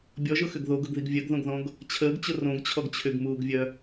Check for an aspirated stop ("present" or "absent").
present